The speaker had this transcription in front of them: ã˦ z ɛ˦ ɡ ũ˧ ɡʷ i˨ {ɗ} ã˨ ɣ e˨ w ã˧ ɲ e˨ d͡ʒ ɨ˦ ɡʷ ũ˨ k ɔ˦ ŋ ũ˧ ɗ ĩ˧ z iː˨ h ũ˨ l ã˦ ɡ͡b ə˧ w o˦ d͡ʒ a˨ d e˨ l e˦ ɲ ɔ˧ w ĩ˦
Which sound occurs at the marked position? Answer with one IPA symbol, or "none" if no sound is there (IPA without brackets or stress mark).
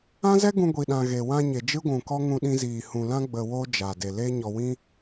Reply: ɗ